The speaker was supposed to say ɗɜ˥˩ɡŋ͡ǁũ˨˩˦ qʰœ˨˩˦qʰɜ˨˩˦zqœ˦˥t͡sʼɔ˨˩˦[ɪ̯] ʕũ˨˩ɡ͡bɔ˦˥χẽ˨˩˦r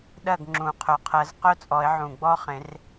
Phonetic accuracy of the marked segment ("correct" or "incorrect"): correct